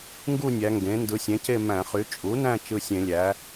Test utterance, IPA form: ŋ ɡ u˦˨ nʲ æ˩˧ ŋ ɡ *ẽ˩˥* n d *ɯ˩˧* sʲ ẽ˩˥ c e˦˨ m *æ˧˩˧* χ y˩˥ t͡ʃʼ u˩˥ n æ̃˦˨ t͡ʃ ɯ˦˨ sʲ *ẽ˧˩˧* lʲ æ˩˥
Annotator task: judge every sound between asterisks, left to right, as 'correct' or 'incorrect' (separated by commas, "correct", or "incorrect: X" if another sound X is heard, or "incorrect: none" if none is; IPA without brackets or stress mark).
correct, correct, incorrect: æ̃˧˩˧, correct